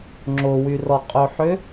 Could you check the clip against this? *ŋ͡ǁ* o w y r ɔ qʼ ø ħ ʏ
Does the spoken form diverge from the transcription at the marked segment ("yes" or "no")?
no